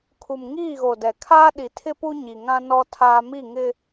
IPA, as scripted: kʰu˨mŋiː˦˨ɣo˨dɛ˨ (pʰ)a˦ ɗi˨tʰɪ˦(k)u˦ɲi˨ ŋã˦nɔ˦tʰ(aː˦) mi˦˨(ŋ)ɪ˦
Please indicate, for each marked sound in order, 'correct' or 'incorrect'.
incorrect: kʰ, incorrect: p, correct, correct

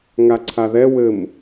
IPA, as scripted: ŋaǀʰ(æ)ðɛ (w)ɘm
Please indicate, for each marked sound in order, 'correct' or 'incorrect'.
incorrect: a, correct

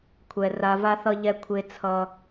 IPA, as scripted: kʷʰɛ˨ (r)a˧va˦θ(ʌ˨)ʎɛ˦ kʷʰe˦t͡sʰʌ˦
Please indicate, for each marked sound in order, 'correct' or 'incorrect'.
correct, incorrect: ʌ˦

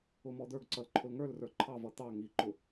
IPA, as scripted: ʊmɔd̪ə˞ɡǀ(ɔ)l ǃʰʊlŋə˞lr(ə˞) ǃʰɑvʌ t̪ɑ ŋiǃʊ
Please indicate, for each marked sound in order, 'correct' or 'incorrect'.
incorrect: ʌ, correct

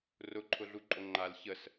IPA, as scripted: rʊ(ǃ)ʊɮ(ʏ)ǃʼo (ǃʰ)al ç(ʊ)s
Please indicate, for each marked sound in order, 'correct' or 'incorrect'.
incorrect: ǃʰ, incorrect: u, incorrect: ŋ͡ǃ, incorrect: ə

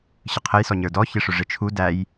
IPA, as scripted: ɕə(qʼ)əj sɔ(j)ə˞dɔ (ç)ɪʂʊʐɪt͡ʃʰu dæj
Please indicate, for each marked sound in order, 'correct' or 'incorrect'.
incorrect: qʰ, incorrect: ɲ, correct

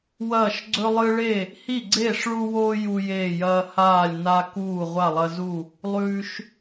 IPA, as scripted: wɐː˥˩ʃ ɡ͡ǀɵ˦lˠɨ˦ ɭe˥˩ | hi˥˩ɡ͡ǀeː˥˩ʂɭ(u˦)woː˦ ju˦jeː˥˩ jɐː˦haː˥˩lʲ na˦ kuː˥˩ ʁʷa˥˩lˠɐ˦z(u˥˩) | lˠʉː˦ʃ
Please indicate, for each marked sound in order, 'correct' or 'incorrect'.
correct, correct

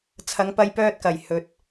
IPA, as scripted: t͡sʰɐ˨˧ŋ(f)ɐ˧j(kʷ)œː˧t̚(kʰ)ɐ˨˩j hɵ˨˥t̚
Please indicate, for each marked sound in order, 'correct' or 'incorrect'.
incorrect: p, incorrect: p, incorrect: k

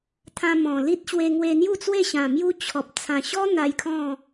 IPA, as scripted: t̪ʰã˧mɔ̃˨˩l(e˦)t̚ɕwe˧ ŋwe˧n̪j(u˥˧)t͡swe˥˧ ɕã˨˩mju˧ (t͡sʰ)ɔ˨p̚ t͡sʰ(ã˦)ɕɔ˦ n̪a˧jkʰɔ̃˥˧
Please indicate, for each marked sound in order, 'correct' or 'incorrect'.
incorrect: i˦, correct, incorrect: t͡ɕʰ, incorrect: ã˨˩

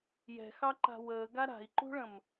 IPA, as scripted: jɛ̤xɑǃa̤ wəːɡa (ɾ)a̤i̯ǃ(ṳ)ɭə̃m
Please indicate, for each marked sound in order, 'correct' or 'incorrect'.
correct, correct

